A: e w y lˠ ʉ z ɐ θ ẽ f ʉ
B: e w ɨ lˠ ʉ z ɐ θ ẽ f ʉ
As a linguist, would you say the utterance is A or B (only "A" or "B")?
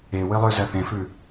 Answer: B